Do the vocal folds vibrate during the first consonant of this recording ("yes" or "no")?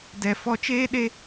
yes